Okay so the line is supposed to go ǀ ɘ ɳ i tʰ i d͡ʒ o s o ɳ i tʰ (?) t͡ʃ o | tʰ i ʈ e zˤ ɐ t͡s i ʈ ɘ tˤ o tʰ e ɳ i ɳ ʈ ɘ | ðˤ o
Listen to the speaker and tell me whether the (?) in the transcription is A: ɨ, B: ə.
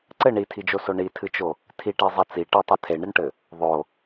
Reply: A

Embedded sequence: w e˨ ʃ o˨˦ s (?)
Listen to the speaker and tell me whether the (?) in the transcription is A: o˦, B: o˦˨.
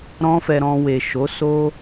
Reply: A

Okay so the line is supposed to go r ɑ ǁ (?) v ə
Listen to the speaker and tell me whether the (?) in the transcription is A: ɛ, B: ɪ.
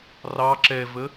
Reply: A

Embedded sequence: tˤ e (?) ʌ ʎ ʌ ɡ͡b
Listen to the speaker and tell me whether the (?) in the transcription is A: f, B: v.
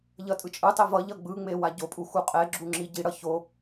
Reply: B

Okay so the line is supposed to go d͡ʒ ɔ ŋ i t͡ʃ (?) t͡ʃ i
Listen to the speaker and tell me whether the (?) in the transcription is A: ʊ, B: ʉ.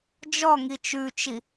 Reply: B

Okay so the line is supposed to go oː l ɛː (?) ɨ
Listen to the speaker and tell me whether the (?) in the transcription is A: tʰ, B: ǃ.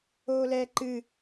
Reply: B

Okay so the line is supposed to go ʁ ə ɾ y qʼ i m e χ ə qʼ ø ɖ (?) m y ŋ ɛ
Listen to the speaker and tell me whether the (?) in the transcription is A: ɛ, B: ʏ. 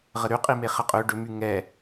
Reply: B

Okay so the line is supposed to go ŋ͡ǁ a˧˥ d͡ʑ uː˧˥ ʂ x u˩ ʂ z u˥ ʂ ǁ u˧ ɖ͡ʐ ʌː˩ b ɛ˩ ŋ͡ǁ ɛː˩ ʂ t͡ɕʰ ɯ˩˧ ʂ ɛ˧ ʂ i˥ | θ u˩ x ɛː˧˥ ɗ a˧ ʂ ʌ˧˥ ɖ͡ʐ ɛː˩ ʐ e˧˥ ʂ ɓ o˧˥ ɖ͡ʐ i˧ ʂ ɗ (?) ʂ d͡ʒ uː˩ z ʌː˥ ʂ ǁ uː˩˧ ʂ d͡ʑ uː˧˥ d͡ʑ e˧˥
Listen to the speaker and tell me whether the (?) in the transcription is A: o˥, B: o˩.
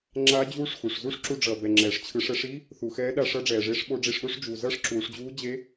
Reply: A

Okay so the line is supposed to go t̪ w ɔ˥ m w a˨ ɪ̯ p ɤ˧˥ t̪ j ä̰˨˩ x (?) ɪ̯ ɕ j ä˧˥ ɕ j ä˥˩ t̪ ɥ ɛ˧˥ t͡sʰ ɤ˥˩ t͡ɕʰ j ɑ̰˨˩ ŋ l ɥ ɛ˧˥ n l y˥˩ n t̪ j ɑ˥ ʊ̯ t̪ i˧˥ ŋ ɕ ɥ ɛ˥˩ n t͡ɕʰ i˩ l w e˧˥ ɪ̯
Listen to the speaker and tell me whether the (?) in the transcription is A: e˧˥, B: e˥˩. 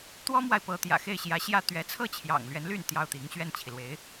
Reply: B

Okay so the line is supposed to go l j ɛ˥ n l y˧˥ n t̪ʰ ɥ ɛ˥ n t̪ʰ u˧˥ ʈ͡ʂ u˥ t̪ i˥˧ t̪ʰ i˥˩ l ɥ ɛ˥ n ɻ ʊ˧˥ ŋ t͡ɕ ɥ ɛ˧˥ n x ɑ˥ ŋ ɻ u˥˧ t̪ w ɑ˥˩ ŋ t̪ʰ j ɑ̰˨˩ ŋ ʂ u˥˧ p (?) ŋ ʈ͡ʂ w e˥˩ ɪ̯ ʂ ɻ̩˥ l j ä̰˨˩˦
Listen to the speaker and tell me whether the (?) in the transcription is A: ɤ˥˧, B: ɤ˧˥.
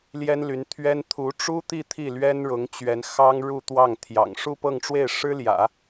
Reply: A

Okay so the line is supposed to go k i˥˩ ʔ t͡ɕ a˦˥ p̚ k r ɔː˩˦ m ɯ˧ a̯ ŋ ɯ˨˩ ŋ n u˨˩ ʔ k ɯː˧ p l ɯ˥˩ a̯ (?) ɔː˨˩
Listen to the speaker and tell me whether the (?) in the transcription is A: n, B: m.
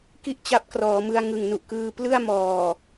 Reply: B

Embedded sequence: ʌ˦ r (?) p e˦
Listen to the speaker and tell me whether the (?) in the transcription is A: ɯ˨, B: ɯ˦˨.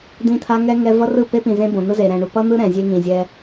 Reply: B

